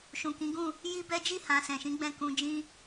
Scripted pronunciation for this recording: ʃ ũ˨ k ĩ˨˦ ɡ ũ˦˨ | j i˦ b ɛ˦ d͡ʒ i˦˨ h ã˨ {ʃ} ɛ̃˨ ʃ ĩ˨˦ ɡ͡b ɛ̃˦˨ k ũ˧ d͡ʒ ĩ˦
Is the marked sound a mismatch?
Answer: yes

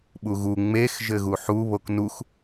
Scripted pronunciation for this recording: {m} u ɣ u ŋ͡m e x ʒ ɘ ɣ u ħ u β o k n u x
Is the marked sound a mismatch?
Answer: yes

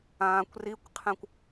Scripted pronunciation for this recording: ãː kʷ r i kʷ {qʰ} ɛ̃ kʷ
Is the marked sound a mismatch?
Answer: no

